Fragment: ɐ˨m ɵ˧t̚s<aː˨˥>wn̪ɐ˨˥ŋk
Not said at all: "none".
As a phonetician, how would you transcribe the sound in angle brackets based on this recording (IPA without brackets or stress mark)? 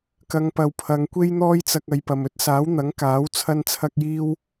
aː˨˥